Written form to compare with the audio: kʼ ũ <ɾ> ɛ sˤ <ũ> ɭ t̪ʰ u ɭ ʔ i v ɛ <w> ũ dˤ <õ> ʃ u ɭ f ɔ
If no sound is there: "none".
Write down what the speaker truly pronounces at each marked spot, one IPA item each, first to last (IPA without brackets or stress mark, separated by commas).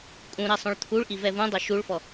ɾ, õ, v, o